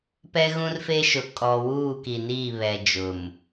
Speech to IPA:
pɛ˦ɣũ˦rfe˦ʃʊ˨ kʼɔ˨wuː˦˨ ki˨niː˦˨βɛ˨ d͡ʒʊ˨m

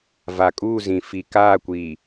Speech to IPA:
va˨kʼuː˦˨zĩ˨ fi˨ kaː˦˨kʷiː˨

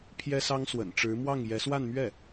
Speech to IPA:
pʰjɛ˥sɑ˥ŋswə̰˨˩nʈ͡ʂɻ̩˧˥ mwɑ˥˩ŋjɛ˧˥ swa˥˧nmɥɛ˥˩

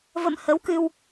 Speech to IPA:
və̰˧˨mhə˨˦wkɨ˧w

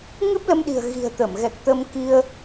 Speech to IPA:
ŋɨ˦˥p̚lə˧mɗi̤˨˩ə̯ ɣi̤˨˩ə̯ t̪ə˧˩mɣɛ˨˩k̚t̪ə˧m ki˧ə̯

